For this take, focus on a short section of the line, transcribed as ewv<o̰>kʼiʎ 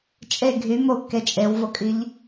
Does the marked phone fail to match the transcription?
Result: yes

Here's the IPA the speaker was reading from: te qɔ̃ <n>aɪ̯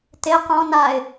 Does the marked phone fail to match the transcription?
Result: no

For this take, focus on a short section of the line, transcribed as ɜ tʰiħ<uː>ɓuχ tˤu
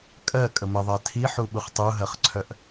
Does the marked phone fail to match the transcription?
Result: yes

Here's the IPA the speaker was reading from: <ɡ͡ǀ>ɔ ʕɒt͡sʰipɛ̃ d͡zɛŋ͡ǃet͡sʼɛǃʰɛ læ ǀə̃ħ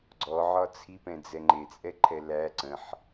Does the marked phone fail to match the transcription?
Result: no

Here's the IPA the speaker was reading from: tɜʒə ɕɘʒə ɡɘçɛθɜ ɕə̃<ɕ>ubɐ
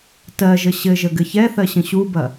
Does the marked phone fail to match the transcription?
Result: no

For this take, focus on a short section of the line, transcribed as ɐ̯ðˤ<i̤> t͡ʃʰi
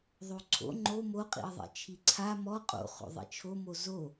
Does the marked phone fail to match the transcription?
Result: yes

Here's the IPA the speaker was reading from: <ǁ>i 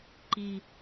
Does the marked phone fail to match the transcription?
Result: yes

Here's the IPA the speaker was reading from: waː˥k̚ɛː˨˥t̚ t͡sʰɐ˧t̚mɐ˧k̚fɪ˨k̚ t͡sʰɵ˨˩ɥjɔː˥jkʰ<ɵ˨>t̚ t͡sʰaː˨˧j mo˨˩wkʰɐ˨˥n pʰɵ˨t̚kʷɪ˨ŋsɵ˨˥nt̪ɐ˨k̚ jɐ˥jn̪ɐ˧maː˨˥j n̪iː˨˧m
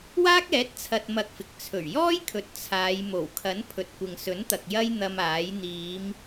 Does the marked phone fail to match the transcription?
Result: no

